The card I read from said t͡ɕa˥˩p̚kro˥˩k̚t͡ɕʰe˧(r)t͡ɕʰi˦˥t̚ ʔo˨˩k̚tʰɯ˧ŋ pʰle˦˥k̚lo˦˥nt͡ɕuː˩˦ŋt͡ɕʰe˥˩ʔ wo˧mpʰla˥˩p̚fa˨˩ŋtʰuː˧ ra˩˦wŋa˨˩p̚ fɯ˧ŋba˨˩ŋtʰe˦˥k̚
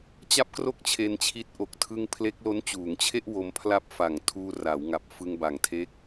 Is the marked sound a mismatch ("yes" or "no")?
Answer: yes